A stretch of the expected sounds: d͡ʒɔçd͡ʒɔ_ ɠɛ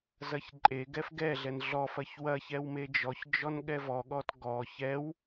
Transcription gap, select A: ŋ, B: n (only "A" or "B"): B